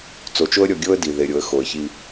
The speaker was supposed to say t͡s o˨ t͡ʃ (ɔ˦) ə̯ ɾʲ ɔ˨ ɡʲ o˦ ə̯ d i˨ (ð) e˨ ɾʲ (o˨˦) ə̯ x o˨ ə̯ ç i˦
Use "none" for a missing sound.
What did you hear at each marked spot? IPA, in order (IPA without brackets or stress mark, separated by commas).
o˦, ð, o˨˦